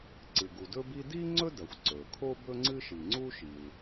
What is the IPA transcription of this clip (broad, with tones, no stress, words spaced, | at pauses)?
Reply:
ǀɨ˩ɡu˩dɵ˥bi˥ di˥ŋ͡ǀɵ˥dɐ˩xʷ ǀɵ˩kʰo˥ bɵ˥ŋ͡ǀɨ˥ʃi˩ ŋ͡ǀu˥ʃi˩l